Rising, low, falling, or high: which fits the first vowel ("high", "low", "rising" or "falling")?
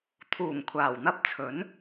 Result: low